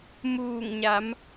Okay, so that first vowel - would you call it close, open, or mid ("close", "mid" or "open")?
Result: close